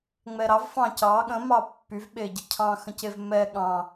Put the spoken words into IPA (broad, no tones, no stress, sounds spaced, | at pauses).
ŋ͡m ɛ ɾ ɑ v f ɑ̃ c ɑ ɠ ə̃ m ɑ pː y v ɓ e ɟ ə cʰ ɑ̃ x ə̃ c e v m ɛ ɠ ɑ̃